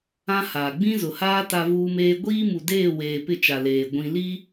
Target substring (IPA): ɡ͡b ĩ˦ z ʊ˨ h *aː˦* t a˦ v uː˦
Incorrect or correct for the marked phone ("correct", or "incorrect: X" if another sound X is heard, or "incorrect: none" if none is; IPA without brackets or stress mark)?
correct